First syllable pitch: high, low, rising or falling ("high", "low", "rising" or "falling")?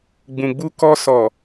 low